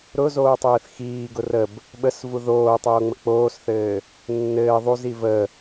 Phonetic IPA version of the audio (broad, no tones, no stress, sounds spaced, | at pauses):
ɾ ʊ z oː tˤ ɘː θ x iː ɡ ʊ r ə b | ɓ ə s v u ð oː tˤ oː ŋ͡m ə k͡p oː s θ ɘː | nː ɘː ðˤ u z i v ə